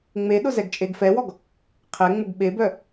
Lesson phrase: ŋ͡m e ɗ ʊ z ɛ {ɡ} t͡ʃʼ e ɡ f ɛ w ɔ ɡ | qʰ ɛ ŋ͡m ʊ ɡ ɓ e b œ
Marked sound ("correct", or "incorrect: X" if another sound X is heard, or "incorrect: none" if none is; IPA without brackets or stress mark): correct